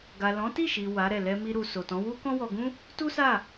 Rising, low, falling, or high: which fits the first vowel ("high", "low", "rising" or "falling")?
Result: low